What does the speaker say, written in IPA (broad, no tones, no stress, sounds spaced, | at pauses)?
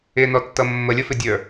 ɪ n ɔ tː ʌ mː ə lʲ ʊ f ɪ dʲ ə˞